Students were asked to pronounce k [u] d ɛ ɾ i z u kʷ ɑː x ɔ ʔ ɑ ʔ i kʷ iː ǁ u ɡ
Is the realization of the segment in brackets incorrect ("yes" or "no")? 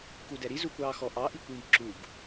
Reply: no